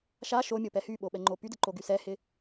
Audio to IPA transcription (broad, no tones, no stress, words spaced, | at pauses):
ʃa ʃomʲopɛ hyɓoɓɛŋ͡ǃo pydɪǃoɡy sɛhɪ